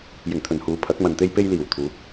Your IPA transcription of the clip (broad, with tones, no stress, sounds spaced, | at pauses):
j ɪ˨˩ ŋ t̪ʰ ɵ˨˩ n h uː˨ pʰ ɐ˨˥ k̚ m ɐ˨ n t̪ e˥ j p e˥ j l iː˨˩ w t̪ʰ uː˨˥ k̚